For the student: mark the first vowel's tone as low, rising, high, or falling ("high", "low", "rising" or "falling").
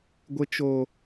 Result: high